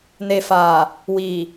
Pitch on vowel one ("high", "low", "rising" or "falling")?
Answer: low